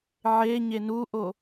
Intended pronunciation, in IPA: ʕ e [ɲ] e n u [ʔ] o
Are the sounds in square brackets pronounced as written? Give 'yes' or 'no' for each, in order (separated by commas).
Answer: yes, yes